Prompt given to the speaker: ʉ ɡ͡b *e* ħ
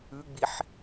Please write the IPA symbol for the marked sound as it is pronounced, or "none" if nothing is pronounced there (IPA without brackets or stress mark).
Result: i